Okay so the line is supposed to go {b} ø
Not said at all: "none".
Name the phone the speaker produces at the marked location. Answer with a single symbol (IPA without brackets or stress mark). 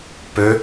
p